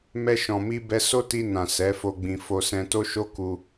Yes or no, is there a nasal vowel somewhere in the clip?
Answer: yes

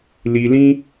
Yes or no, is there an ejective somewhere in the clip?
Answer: no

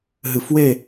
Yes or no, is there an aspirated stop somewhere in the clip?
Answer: no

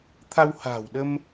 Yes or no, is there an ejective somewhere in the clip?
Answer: no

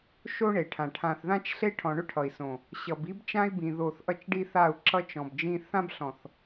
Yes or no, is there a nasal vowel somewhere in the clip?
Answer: yes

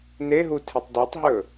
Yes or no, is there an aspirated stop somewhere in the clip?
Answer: yes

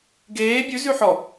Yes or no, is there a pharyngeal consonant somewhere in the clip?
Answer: yes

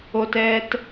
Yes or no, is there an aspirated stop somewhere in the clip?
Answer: no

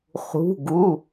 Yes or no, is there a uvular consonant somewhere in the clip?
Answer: yes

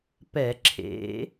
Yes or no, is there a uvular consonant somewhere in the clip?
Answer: no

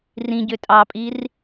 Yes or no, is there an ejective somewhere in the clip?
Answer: yes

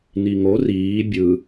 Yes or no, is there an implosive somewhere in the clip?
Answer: no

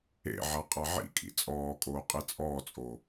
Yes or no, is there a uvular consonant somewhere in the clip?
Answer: yes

